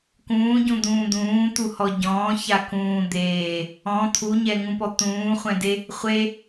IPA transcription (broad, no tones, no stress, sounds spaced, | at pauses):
k ũː ɟ ũ d̪ ũː d̪ ũː t̪ u h ɔ ɟ ɔ̃ː ç a k ũː d̪ eː | ɔ̃ t̪ʰ u ɲ ɛ ŋ ũ p ɔ t̪ ũː χʷ ɛ̃ d e | χʷ e